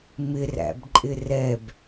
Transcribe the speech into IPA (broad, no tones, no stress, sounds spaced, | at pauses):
m ɪ r æ̰ b ǃʼ ɪ r ɛ b